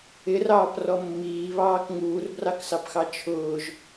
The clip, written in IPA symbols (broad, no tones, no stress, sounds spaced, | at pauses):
ɪ r ɑː p r ɔ mː iː β ɑː k ŋ uː r b r ɑ k s ɑ p x ɑ t͡ʃʰ ʊː ʒ